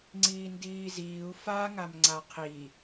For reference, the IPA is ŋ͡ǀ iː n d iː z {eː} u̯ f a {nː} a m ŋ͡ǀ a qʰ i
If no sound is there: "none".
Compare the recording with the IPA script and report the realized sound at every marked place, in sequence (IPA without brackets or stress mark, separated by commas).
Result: iː, ŋ